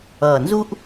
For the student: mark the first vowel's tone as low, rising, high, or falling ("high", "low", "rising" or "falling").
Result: low